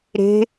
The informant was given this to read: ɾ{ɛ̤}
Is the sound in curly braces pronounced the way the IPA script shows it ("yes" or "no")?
no